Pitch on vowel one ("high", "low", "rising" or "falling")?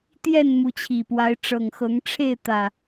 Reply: falling